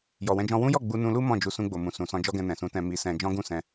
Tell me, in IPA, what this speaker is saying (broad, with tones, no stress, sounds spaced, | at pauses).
j ɔ˨ w ɛ̃˧ d͡ʒ ɔ̃˧ w ũ˦ j ɔ˦˨ ɡ͡b u˧ n ũ˧ l u˦ m ɔ̃˦˨ d͡ʒ u˧ s ũ˧ ɡ͡b o˨ m ũ˨ s ũ˨ s ɔ̃˧ d͡ʒ ɔ˦ ɡ ɛ̃˧ n ɛ̃˨ s ũ˨˦ t ɛ̃˧ m i˧ s ɛ̃˧ d͡ʒ ɔ̃˦ ɡ ũ˦˨ s ɛ̃˧